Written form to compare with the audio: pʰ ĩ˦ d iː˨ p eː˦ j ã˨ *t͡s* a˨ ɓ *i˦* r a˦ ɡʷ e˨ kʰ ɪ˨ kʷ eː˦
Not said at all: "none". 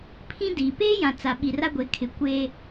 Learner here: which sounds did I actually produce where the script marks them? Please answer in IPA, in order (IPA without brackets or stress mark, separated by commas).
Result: t͡s, i˨